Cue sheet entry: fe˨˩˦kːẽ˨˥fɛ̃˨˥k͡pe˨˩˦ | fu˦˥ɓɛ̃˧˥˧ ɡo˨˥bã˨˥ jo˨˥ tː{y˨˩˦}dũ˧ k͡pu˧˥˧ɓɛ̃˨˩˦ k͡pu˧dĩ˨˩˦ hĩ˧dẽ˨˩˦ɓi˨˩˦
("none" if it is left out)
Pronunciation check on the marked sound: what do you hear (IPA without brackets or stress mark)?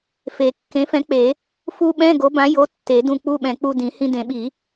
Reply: e˨˩˦